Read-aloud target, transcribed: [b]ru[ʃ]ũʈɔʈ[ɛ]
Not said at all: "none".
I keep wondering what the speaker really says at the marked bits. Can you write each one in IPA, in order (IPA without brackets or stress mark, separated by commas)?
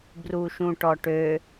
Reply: b, ʃ, ø